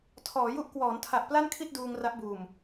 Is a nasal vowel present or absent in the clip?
absent